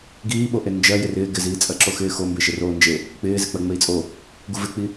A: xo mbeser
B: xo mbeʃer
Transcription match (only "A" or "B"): B